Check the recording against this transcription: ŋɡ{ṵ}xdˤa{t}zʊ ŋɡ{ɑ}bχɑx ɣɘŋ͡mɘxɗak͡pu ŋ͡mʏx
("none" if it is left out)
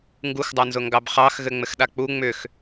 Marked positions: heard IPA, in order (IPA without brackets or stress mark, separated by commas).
u, n, ɑ